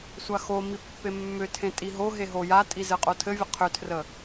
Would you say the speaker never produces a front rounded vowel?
no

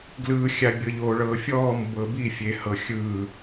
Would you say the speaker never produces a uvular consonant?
yes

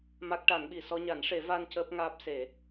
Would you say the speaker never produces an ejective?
yes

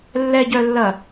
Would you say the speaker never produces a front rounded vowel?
no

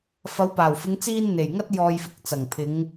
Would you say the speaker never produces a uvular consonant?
yes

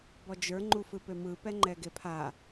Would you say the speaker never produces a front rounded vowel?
no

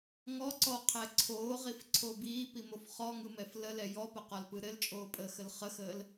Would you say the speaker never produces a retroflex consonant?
yes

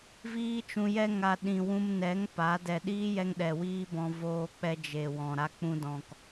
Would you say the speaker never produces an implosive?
no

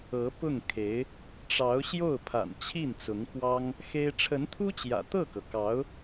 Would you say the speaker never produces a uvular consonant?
yes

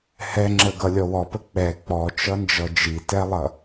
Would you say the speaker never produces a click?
no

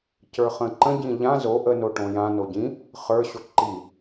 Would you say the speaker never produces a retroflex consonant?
no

